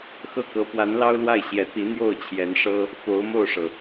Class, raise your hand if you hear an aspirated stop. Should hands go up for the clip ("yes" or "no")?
yes